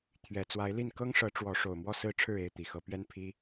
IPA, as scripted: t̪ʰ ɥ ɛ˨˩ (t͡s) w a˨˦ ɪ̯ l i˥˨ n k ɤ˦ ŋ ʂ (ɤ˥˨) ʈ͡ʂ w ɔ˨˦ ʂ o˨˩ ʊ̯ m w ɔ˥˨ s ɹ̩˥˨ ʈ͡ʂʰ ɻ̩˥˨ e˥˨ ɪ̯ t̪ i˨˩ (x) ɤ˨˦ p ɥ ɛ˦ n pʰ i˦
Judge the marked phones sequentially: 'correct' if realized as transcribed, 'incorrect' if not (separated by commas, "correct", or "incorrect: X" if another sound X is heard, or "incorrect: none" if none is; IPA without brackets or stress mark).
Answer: correct, incorrect: ɤ˨˦, correct